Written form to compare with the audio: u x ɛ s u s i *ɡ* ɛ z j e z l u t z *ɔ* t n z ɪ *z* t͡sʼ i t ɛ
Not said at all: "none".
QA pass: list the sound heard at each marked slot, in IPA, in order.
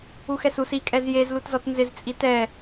kʼ, ɔ, z

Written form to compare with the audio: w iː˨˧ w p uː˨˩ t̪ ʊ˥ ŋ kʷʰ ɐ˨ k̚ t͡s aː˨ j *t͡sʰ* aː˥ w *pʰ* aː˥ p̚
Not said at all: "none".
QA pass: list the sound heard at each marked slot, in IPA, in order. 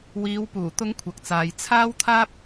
t͡sʰ, t̪ʰ

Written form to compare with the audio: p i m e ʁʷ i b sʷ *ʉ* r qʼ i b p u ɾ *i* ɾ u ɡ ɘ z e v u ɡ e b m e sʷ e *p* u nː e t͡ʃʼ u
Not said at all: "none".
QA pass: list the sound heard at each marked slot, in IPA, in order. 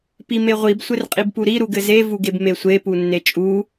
ɘ, i, p

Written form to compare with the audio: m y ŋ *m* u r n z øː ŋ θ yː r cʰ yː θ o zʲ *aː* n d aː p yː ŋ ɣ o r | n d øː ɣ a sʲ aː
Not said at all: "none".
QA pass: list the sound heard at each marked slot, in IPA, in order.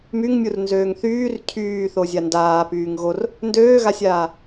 mʲ, a

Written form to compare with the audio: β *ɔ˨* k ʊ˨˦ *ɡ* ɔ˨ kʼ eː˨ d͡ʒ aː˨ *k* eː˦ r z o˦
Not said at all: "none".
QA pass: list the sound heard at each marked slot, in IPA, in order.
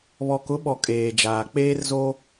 ɔ˨, ɓ, k͡p

